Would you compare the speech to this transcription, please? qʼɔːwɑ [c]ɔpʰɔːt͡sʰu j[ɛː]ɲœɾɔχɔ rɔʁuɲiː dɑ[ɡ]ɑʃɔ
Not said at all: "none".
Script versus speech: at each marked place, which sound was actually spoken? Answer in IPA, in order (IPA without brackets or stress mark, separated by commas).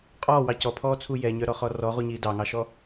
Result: c, ɛ, ŋ